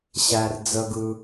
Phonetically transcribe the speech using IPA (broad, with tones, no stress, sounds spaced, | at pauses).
ɕ æ˦ r d͡z ə˦ ɡ ɯ˦